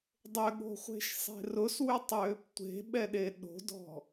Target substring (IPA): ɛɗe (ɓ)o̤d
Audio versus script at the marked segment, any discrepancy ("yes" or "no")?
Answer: yes